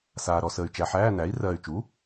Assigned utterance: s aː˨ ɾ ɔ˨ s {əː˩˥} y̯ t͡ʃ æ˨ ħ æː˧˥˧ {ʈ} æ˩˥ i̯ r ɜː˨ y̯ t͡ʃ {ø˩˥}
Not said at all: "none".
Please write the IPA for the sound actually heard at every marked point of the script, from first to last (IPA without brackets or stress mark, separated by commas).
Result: əː˨, n, u˩˥